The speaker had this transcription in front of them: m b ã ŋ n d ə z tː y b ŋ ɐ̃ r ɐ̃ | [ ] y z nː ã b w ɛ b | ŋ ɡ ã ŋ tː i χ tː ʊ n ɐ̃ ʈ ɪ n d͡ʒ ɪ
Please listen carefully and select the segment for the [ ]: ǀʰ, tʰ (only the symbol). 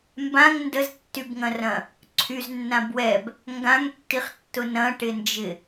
ǀʰ